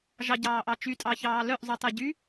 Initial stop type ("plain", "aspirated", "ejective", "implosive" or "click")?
plain